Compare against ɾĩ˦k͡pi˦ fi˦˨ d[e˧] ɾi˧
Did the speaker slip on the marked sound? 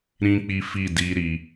yes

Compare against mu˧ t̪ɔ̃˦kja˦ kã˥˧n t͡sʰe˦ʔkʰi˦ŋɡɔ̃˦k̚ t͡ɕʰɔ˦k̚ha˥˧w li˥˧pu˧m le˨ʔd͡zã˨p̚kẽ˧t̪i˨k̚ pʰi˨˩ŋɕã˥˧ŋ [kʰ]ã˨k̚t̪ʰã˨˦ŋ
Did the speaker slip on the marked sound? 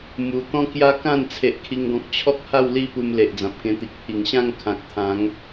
no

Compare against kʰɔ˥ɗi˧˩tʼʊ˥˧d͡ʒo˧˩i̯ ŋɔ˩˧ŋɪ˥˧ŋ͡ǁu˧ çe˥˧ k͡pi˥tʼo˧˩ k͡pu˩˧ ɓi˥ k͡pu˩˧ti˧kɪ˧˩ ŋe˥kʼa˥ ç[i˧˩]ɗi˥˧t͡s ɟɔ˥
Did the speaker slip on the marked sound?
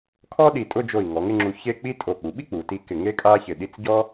yes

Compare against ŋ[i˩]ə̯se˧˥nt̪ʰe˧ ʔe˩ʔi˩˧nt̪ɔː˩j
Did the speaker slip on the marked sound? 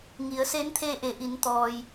yes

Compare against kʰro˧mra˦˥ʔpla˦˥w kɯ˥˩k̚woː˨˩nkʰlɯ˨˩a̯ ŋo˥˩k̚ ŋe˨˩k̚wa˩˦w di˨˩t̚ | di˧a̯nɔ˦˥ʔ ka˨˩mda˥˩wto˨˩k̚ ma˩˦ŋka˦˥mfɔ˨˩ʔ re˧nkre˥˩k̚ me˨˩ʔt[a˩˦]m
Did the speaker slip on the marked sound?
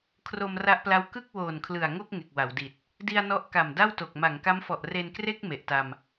yes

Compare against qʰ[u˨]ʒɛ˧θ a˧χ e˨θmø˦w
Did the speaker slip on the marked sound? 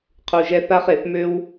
no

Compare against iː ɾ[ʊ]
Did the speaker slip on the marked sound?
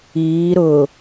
no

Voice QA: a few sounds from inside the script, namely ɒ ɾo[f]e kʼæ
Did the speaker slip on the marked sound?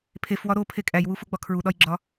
yes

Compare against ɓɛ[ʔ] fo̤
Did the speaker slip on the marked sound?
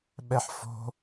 yes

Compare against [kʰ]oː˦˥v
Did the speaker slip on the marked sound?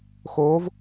yes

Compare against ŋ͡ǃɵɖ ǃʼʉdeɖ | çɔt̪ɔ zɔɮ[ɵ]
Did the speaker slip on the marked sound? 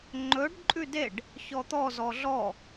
yes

